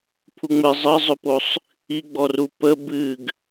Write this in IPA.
pʰ u ŋ͡m ɘ zˤ ə zˤ ɵ p o sˤ | i ɡ͡b ɔ r u p ə b ɨ ɡ

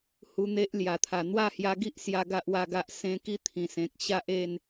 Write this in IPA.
h u˧ n̪ e˦ ʔ l j a˨˩ t̪ʰ a˨˩ n̪ w a˥˧ h j a˧ ɡ i˦ ʔ s j a˦ ɡ a˦ ʔ w a˥˧ ɡ a˦ ʔ s ẽ˦ k i˥˧ t̪ʰ ĩ˨˩ s ẽ˨ k̚ ɕ a˦ ʔ e˥˧ n

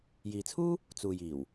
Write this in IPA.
j iː˨ t͡sʰ uː˥ | t͡s uː˨ j iː˨˩ w

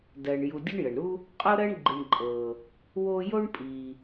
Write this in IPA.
d ɜ˨ ɳ j u˨ dʲ ə˦ ɳ j ə˩ ɳ ɾ u˦ | qʼ o˥ ɾ ɜ˦ ɳ ɡ͡ǃ i˨ ɳ ǃʼ ɤ˩ | w o˦ j o˥ ɳ pʼ i˨

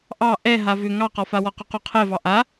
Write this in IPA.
ʔ ɑ ʔ ɛ ɦ a v ʏ ŋ ɑ q ɔ f a w ɔ q u q u qʰ ɛ v ɑ ʔ a

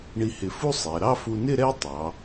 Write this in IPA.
ɳ i˧ h ɪ˧˩ f u˥ sˤ ɛ˩˧ ɾ ɑ˥˧ f u˧ n ɪ˥˧ ɾ ɛ˥ tˤ ɑ˩˧

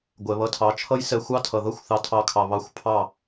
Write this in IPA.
ɡʷ ɛ˨ β ʌ˧ tʰ ɑ˨˦ t͡ʃʰ ʌ˦ j s ɛ˧ xʷ ɑ˦ tʰ ʌ˨ ð ʌ˦ xʷ θ ɑ˧ tʰ ɑ˧ kʰ ɑ˨ β ɑ˧ xʷ pʰ ɑ˦˨

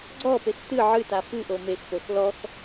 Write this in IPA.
ɡ͡ǀ ɔ p e x t ɨ ʕ ɨ t a f ɨ ʔ o m e x p o x l ɔ x

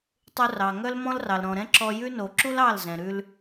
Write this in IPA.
tˤ u˧ r ɑ˨ ŋ œ˦ l m ɔ̃˦ l r ɑ˨ l ɾ ɔ̃˨ ɾ ɛ̃˦ ǁ ɔ˧ j ʉ˦ n o˨ ǁ u˦ l ɑ˦˨ l z ɛ̃˨ ɾ ʉ˧ l

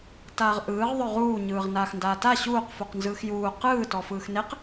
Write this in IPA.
t aː ʁ ʔ ɯː ʁ ðˤ ɵ ʁ uː ɲ ɯː ʁ n aː x n d aː t a ɕ uː q f u q n z ɯː x j uː q ɯː t ɔ f ɯː x n e q

